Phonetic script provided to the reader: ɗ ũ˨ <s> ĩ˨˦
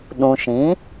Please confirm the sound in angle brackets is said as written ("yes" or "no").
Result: no